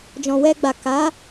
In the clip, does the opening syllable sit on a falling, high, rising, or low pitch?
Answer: low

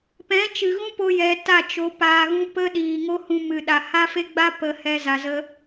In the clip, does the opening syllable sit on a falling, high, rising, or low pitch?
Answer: rising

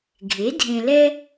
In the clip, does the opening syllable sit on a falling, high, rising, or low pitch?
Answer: rising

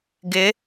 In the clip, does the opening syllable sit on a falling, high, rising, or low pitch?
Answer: rising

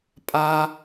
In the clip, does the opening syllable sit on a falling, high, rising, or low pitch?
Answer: high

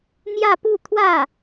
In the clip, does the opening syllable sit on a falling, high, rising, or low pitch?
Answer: falling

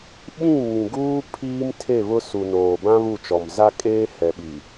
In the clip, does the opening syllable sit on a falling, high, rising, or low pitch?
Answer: falling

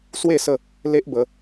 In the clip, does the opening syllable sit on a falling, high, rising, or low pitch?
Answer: falling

